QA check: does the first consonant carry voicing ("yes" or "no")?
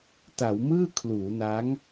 no